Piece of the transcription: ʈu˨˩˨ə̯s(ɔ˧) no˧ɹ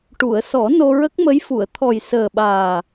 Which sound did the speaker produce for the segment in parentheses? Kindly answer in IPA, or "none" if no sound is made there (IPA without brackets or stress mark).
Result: ɔ˨˩˦